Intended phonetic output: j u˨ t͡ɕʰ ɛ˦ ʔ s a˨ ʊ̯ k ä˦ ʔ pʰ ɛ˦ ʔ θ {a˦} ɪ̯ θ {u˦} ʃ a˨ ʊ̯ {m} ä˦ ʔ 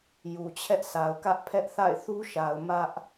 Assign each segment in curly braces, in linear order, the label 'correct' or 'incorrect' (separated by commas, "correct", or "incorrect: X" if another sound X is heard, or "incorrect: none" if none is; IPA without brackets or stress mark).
incorrect: a̰˦˨, correct, correct